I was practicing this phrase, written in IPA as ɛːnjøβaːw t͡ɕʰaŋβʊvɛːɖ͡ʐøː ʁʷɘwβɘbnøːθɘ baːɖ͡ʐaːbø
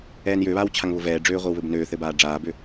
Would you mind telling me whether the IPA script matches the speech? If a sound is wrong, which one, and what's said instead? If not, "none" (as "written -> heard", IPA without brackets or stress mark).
none